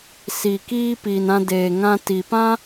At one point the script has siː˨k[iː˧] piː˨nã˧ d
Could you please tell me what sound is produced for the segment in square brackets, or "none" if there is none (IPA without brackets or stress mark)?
iː˧